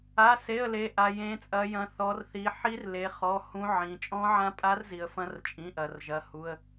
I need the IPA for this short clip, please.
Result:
a˩˧˩ s e˩˧˩ ə̯ l e˩˧ ʔ a˩ j ẽ˩˧ t͡sʼ ɐ˩˧ j ɐ̃˩˧ θ ɔ˩˧ r θ i˩˧ ħ i˧˥ r l e˩˧ χ ɔ˩˧˩ h ũ˧˥ ʕ ĩ˩˧ t͡ʃʼ ɔ̃˧˥ ʕ ã˧˥ pʼ a˧˥ r z i˩ ə̯ f ɐ̃˧˥ r t͡ʃʼ ĩ˩˧˩ ʔ ɐ˩ r ʒ ɐ˩˧˩ h u˩˧˩ ə̯

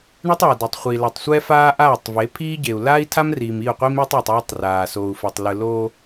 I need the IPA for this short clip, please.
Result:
ɳ e˦ tˤ a˨ d ɤ˨ tˤ χʷ i˨ l a˨ tˤ sʷ ɛ˦ f aː˦ ʔ aː˦˨ tˤ v e˨˦ pʰ iː˦ ɟ e˨ u̯ l aː˦ i̯ tʰ a˦ m r iː˨ m i˦˨ u̯ qʷ i˦ m e˦ tˤ o˨ tˤ ɔː˦ tˤ r aː˨ s oː˨ u̯ f ɛ˨ tˤ l ɯ˨ l oː˦

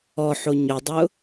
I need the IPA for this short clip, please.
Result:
ɔ ħ o ɲ ʊ dˤ ʊ

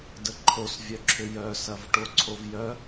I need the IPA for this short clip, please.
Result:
d ə ǃʰ o s vʲ œ ǁʰ ʏ j œ s ɐ v ʈ o ǀʰ o v j œ

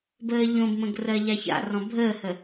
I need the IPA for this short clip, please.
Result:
b əː ʎ õ b m ə̃ ɡ r ɜ ʎ a ç a̰ r ɔ̃ bʱ əː h ə

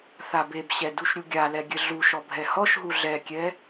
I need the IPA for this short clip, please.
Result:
θ a b e b ɕ ɛ d u ʃ ɾʲ u ɡʲ a l ɛ ɡʲ ɘ ɮ u ʃ ɔ bʱ ɛ h ɔ ʃ ɦ u ɮ ɛ kʲ ɛ

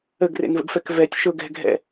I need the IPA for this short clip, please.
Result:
ə ɡ r ḛ n v ə̰ ɡ f ɛ k v ɛ tʲ ʃ ʊ ɡ ɛ̤ ɡʱ ɛ̰

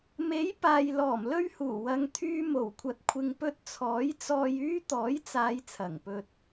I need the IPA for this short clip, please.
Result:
m e˨˥ j p aː˨ j l ɔː˨˩ m l ɵ˥ ɥ h uː˨˩ w ɐ˨˧ ŋ t̪ʰ yː˧ m o˨˩ w kʷʰ ɐ˨ t̚ kʷʰ ɪ˨ ŋ p ɵ˧ t̚ t͡sʰ ɔː˨˥ j t͡s ɔː˧ j yː˥ t̪ ɔː˨˥ j t͡s aː˨˧ j t͡sʰ ɐ˨˩ ŋ p ɵ˧ t̚

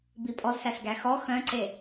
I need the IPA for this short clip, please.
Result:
b i pʼ ɔ z s æ s ɡ æ x ɔ x œ̃ ǀ e

